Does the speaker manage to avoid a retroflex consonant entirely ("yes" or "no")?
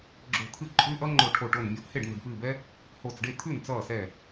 no